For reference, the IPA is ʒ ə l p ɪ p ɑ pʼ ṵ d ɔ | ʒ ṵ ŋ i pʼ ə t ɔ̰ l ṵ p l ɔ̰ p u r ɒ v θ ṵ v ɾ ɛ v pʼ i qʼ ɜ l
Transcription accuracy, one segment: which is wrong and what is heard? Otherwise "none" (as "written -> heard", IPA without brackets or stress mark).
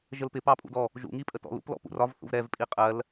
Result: u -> ṵ